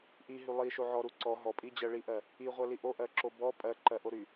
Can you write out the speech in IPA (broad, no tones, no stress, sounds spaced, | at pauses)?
ʔ i ɦ y lˠ i ʃ o ʕ ɔ ɾ u ǀ ɔ ɦ ɔ pʼ i d͡ʑ ɜ ɭ i ʔ ɜ | i ʁʷ ɜ l i ʔ o ʔ ɜ ǁ o b ɔ pʼ ɜ ǃ ɜ ʔ o ɾ y